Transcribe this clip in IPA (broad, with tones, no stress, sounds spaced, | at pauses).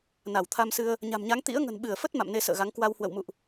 n a˧˩ w t̪ʰ a˧ m s ɨ˧ ə̯ | ɲ a̤˨˩ m ɲ a˨˦ ŋ t̪ ḭ˧˥ ə̯ ŋ ə̤˨˩ n ɓ ɨ˧˩ ə̯ f ə˦˥ t̚ m a̰˧˨ m n e˨˦ s ə̰ː˧˨ ɣ a˨˦ ŋ k w a˧ w h w ə̰˧˨ w m ṵ˧˨ ʔ